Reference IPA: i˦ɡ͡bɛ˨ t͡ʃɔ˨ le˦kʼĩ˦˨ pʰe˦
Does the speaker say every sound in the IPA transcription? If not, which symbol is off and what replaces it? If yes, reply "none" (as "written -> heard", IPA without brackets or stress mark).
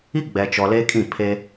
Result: none